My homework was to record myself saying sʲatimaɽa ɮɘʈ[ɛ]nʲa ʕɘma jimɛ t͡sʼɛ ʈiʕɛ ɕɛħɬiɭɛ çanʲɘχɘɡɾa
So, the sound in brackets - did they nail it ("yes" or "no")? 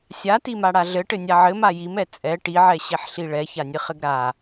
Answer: no